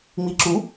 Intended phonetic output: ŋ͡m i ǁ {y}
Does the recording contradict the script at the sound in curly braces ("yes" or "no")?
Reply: yes